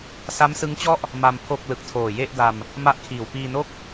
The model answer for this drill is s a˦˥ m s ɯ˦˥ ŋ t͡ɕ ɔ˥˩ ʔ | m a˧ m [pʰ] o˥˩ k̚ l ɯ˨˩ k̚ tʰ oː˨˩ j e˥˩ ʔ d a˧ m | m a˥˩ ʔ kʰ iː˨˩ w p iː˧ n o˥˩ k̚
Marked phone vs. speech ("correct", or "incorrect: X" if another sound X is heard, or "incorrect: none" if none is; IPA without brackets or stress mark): correct